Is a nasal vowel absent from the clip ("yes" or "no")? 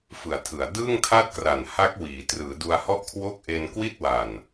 yes